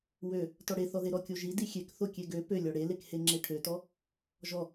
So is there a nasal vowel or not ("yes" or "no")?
no